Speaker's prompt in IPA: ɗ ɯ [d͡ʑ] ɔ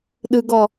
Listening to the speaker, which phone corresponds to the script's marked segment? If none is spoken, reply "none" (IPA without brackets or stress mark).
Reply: ɡ